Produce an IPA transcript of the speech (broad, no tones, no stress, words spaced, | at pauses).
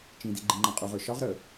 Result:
t͡ʃĩdi ɡ͡ǃĩŋ͡ǃãqʼuʁə˞ ʃɒʁ ɾə